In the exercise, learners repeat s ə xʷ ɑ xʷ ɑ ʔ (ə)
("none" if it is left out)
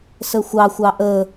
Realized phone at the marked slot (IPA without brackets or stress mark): ə